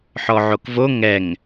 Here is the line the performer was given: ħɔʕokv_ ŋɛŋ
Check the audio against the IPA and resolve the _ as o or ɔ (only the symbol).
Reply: o